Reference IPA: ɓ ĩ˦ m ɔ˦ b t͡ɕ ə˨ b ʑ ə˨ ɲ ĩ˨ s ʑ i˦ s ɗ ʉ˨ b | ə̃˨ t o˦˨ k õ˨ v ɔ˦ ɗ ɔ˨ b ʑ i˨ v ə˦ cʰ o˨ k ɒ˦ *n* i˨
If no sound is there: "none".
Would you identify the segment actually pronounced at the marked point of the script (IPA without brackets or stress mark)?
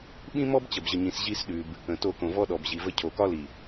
l